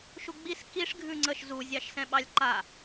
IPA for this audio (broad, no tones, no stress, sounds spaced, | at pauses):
ʃ u ɡ͡b i s k i ʂ ɡʱ ʉ ŋ͡ǀ ə ʃ z u zʲ ɑ ʃ s ɛ̃ ɓ ɑ lʲ ǃ a